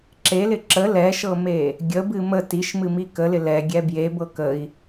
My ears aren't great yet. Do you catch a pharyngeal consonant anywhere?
no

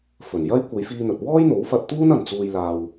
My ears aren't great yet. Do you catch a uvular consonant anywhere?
no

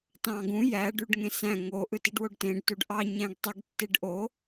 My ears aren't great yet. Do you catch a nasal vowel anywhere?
yes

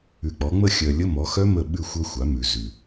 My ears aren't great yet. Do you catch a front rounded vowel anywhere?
yes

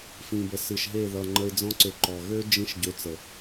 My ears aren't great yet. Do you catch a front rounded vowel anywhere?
yes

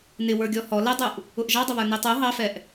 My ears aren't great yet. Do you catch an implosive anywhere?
no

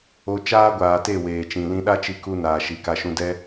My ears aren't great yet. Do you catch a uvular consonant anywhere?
no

